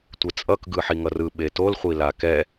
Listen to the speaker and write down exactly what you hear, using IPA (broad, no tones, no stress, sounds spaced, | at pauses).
tʷ e t͡sʼ ʌ k ɡ ɯ ħ i ŋ ʌ r ɯ ɓ e t o l χʷ i l a k ɛ